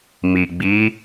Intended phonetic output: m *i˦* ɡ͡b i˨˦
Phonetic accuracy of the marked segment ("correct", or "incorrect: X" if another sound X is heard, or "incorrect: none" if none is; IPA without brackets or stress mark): incorrect: i˨